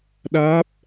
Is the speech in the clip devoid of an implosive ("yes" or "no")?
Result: no